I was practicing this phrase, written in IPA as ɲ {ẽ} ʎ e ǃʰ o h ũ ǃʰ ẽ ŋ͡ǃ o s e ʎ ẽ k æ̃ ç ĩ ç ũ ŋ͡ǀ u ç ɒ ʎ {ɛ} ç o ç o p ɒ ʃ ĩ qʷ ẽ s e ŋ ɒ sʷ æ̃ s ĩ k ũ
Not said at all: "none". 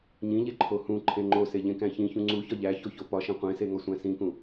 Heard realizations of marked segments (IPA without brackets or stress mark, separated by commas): ĩ, æ